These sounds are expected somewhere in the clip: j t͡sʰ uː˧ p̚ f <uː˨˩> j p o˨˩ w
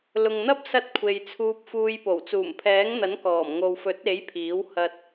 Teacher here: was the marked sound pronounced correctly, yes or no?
no